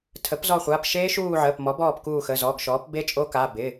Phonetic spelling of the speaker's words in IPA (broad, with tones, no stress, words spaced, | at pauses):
tʰə˩˥pzɔ˦˨χʷaː˩˧˩p ʃeː˦˥ʃuː˦˨ ʕəː˩˧˩pmɔ˩˥bɔː˦˨p kuː˦˨xə˩˧˩zɔ˩˧˩ɡʃɔː˩˥p be˦˥t͡ʃʼo˦˥ka˩˧˩ bɪ˩˧˩